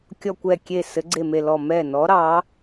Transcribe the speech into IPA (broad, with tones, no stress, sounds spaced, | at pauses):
kʲ ɔ˧˩ kʷ ɛ˧˩ kʲ e˧˩ s ɘ˨˦ ɡ͡ǀ e˧˩ m e˧˩ l ɔ˧˩ m ɛ˧˩ n ɔ˨˦ ɾ ɑ˨˦